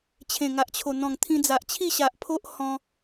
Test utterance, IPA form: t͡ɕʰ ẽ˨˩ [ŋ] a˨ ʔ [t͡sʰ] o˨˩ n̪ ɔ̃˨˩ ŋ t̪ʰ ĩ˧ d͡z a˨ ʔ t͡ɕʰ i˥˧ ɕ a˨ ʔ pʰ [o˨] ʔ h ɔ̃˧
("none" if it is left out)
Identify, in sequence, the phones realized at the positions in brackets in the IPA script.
ŋ, t͡ɕʰ, o˦

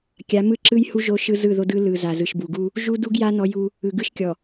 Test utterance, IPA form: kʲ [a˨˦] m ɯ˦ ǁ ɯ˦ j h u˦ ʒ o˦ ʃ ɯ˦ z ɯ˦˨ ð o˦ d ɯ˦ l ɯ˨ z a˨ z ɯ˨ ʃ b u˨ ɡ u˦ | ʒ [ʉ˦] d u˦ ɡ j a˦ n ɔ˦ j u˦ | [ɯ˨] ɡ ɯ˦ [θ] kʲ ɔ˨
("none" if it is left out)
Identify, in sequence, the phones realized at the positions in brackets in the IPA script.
a˨˦, u˦, ɯ˨, ʃ

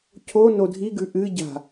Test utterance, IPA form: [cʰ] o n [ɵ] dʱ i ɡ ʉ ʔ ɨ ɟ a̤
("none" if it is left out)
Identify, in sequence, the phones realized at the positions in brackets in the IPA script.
cʰ, o

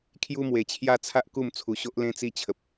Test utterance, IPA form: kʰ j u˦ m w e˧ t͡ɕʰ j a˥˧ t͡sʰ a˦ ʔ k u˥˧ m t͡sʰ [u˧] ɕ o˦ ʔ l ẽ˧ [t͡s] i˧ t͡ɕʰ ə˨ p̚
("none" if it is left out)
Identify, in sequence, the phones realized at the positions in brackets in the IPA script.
u˧, t͡s

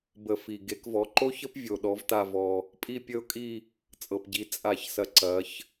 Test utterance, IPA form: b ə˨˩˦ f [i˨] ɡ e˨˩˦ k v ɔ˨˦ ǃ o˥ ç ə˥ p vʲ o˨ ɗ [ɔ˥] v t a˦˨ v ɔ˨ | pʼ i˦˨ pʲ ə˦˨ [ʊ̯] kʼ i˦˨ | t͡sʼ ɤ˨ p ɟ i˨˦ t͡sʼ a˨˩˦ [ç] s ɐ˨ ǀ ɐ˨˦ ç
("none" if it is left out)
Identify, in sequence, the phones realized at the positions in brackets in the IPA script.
i˨, ɔ˨˦, ʊ̯, ç

